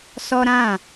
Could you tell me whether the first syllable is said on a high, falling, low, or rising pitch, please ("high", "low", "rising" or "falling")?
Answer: high